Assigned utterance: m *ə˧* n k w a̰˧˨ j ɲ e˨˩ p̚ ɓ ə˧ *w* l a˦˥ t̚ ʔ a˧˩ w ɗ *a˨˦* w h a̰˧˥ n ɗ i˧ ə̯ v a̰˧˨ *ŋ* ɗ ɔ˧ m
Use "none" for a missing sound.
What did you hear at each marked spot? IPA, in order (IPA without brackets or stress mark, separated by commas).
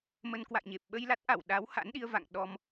ə˧, j, a˨˦, ŋ